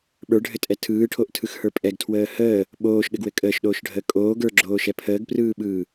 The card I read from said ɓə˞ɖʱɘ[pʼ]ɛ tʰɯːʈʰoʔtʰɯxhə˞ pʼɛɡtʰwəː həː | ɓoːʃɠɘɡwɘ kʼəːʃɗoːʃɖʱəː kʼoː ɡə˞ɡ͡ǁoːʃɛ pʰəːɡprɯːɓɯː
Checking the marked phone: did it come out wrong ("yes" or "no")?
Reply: yes